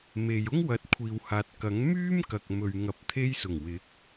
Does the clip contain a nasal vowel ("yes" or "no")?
no